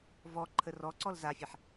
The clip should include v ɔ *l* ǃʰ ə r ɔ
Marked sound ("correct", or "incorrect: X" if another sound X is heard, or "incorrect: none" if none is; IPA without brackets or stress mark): incorrect: none